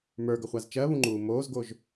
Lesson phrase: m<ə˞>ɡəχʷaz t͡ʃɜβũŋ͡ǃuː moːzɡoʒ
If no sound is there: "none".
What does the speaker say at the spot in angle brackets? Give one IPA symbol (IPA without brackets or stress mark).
ə˞